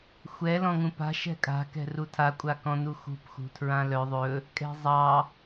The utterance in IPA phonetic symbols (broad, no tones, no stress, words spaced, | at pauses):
xʷɛ lɔ̃ŋũpa̤ ʃɛ̤kʼa̤ kɛ̤rutʰa kʷʼakɔ̃nuxṳp xṳtʰɹãlœ ðˤɵ | kʼɛ̤zˤɑ